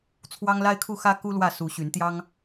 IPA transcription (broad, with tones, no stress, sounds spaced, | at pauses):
t͡sʰ w ɑ˦ ŋ l a˦ ɪ̯ kʰ u˥˨ x ä˦ k u˦ l w ä˥˨ s u˨˦ ɕ y˨˦ n t̪ j ɑ˦ ŋ